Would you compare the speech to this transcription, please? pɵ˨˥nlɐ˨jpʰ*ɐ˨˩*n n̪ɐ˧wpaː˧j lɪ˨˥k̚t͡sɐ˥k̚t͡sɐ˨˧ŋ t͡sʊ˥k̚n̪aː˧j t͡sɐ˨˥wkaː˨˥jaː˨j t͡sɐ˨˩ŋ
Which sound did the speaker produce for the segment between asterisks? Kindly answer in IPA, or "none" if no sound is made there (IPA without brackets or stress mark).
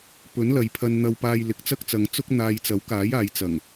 ɐ˧